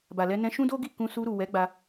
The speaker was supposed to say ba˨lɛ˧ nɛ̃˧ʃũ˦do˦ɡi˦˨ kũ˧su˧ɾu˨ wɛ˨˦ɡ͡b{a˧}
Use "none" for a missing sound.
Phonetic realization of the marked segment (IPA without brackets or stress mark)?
a˧